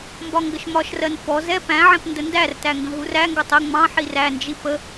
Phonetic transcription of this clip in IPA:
mbɒŋɡəʃmɒʃrɜn fɔ zɛ pæ̃ʕɛ̃p ndəndærtæ ŋɡə̃ɦuræŋɡɒtˤ ə ŋ͡mɑ̃ħi rænd͡ʒi pə

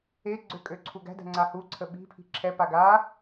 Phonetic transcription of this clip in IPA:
eɡ͡ǀø kʼøǀʰuɡæ̤dæ̤ ŋ͡ǀahuǀʰə ɓi̤ pʰi̤ǁʰɛpa ɡa

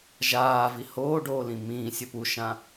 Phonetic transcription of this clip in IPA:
ʒaːvi hoːɖoːlĩ mĩːsʲɵ puʃã

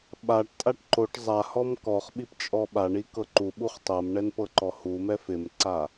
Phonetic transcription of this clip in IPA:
ɓaʈtʼaʈ ǃoʈ zˤahɔm kɔχɓip t͡ʃʼɔɓaɳi kɤǃuɓuχ tˤɤmɳɛn pɤǃɔhumɛ fɪmǀa

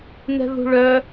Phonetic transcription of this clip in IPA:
nɛ̤ðṳɭœ

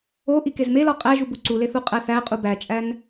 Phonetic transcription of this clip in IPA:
o ʔikezmelɒ qʼæʒub uǀuleθ uqʼæθæqʼu bæt͡ʃʼæn

